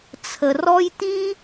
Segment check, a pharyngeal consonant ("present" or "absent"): absent